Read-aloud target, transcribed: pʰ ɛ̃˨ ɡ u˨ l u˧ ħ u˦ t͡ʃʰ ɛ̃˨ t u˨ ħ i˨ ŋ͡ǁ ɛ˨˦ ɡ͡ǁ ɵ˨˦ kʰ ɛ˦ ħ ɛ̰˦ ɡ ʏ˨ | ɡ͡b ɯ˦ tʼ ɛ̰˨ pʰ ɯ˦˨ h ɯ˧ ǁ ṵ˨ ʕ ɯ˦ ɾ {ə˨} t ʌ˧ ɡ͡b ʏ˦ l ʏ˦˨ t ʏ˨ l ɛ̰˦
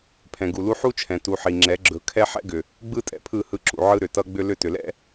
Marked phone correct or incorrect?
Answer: incorrect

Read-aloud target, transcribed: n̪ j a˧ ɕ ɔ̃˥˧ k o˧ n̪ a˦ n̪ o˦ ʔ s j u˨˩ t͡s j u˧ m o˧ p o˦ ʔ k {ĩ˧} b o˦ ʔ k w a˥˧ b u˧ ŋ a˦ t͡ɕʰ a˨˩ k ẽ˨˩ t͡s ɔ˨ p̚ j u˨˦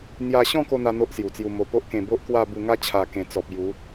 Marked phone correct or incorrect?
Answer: incorrect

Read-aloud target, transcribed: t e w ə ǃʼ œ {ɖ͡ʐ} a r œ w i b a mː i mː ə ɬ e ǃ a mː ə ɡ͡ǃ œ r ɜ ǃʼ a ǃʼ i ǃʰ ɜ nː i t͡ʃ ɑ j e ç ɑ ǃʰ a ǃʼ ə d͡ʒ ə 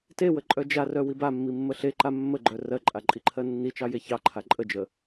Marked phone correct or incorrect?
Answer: incorrect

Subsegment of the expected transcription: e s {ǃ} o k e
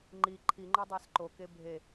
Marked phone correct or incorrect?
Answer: correct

